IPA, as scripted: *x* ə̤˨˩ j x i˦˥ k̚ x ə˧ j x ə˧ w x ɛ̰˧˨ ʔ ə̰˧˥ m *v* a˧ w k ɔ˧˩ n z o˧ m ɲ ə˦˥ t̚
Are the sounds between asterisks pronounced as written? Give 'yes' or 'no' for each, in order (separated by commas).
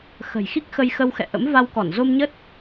yes, yes